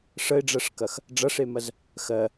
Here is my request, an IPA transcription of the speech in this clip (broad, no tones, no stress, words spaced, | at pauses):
ʂəɪ̯ɖ͡ʐɜʂkɐx | ɖ͡ʐɐʂemɐz | xɜ